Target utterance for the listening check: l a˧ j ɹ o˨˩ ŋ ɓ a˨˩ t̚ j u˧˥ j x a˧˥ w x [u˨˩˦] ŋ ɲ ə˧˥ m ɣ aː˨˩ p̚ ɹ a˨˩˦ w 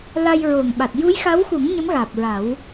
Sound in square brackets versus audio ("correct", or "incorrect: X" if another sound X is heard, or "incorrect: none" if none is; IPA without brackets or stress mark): correct